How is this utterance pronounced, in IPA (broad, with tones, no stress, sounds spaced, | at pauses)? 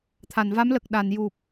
t̪ʰ a˨˩˨ n v a˧˥ m l ə˨˩ k̚ ɗ a˨˩˨ n j u˨˩ p̚